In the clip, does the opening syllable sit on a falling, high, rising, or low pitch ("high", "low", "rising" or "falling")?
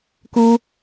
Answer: high